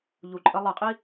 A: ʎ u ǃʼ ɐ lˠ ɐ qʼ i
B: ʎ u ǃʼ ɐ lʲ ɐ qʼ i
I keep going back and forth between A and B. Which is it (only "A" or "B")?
A